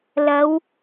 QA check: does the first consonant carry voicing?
yes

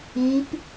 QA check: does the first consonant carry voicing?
no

